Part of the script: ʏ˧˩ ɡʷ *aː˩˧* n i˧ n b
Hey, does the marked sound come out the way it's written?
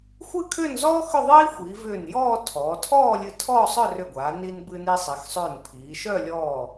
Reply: yes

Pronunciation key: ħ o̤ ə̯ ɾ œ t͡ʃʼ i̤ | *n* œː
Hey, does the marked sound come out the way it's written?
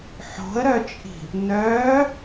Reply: yes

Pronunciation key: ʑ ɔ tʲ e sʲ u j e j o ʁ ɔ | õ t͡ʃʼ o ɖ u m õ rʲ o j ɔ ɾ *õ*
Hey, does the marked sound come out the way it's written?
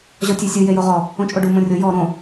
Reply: yes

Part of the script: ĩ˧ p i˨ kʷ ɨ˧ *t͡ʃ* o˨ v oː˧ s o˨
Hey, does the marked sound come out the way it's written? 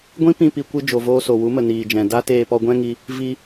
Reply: no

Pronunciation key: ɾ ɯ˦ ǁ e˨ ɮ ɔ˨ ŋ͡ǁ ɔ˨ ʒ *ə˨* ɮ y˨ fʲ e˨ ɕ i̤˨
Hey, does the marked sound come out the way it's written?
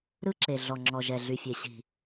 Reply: no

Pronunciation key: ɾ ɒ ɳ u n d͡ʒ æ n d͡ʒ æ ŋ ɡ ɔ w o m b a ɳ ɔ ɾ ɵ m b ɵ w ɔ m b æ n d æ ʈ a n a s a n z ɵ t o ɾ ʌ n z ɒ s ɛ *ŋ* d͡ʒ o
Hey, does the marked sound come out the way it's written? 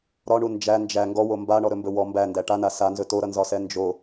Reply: no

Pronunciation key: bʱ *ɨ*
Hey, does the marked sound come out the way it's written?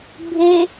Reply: no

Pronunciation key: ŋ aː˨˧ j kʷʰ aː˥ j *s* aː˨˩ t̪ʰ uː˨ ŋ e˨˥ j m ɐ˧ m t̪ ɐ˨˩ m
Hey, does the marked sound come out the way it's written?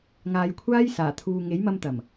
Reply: yes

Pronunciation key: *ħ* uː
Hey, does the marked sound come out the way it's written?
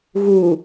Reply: no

